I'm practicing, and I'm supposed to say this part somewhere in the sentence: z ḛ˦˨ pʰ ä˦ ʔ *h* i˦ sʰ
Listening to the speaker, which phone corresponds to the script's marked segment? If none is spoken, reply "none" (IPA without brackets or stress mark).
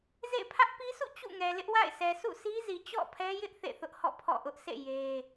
p